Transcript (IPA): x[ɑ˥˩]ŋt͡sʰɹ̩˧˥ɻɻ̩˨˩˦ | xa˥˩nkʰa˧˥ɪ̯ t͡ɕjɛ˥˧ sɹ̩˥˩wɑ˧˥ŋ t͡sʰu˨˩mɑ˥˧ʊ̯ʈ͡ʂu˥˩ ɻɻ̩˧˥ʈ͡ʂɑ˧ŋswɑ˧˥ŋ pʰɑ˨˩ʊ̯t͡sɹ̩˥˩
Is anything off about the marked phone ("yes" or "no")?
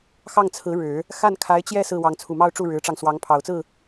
no